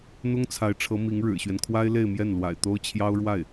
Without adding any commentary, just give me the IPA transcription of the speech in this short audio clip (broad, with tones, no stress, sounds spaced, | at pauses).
n̪ ʊ˥ ŋ t͡sʰ a˧˥ ɪ̯ ʈ͡ʂʰ ɤ˧˥ m i˧˥ ŋ ɻ ɻ̩˨˩ ɕ ɥ ɛ˦ n kʰ w a˥ ɪ̯ l e˥˧ ɪ̯ m j ɛ˥˩ n l w a̰˨˩ ɪ̯ t̪ o˥ ʊ̯ t͡ɕʰ j ɑ˥ ʊ̯ ɻ w a˥˩ ɪ̯